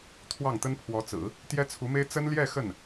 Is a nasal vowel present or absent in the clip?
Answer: absent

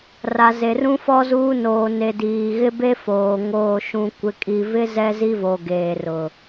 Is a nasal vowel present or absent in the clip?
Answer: present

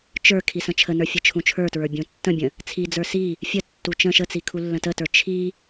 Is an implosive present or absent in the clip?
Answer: absent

